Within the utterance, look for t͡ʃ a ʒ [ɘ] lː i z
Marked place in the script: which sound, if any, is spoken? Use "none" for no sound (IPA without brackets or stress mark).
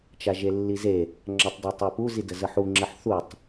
e